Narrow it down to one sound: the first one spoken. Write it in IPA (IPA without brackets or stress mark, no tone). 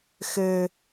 x